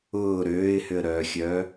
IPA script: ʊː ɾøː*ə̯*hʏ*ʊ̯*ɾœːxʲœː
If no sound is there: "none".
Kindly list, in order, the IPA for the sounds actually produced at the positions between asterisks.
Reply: ɪ̯, ə̯

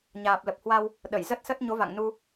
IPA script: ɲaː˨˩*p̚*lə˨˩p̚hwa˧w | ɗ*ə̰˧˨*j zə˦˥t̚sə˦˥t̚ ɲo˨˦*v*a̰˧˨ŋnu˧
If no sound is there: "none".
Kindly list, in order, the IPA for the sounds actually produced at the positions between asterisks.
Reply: p̚, ə˧˩, v

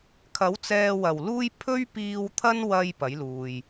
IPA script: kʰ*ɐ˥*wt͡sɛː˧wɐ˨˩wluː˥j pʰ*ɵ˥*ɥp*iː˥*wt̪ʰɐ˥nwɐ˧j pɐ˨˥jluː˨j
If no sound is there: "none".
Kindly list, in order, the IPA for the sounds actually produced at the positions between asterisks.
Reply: ɐ˨˥, ɵ˥, iː˧

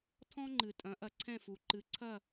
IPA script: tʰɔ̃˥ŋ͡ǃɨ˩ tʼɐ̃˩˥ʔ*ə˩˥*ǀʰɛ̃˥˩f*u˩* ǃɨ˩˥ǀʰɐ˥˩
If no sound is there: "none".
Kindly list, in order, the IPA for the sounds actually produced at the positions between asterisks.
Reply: ɐ˩˥, u˩

